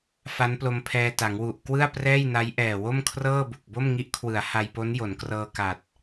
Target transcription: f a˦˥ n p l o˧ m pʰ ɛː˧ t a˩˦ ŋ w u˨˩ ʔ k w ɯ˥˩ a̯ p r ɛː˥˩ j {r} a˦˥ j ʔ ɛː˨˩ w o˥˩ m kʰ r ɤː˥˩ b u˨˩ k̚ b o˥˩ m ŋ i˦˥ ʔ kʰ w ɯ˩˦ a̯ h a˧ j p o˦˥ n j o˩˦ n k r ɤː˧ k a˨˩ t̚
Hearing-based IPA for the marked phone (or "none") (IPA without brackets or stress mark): n